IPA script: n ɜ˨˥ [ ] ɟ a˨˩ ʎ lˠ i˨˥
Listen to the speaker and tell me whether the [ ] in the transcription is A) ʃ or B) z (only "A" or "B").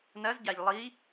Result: B